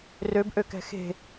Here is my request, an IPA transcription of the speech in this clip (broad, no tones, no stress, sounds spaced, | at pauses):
r ø b ʔ ø k ɛ̤ x e̤